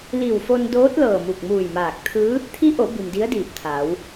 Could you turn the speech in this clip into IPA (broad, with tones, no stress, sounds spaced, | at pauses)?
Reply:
l i˧˩ w f o˧ n d oː˧˥ t̚ l ɤː˧˩ m u˧˩ k̚ m uː˧˩ j m aː˧˩ k̚ t̪ʰ ɯː˧˥ | t̪ʰ i˧˥ ʔ o˩˧ b i˩ m d i˧˥ ə̯ d iː˧˩ p̚ t̪ʰ aː˩˧ w